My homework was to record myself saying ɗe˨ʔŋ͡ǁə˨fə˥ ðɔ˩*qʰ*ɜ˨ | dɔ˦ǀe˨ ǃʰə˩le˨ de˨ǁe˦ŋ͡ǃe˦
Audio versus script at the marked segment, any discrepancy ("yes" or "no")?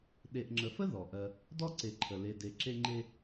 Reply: yes